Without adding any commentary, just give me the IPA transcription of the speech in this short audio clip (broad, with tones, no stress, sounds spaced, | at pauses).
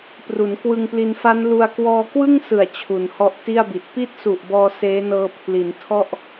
p r u˩˦ n k w ɯ˧ ŋ p l i˧ n f a˦˥ n l u˧ a̯ k w ɔː˧ k w ɯ˥˩ ŋ s ɯ˨˩ a̯ t͡ɕʰ u˩˦ n h ɔ˦˥ ʔ t i˥˩ a̯ b i˨˩ t̚ p i˦˥ t̚ s u˨˩ ʔ b ɔː˧ s eː˦˥ n ɤː˧ pʰ l i˩˦ n tʰ ɔ˥˩ ʔ